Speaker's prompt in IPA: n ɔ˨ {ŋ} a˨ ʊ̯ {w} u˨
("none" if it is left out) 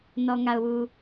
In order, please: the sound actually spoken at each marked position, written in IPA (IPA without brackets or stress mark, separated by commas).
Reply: ŋ, w